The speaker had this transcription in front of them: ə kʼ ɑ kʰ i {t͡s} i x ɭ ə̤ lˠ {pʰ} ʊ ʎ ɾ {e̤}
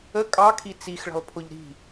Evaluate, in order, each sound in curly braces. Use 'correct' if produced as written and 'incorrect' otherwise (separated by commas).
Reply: correct, correct, incorrect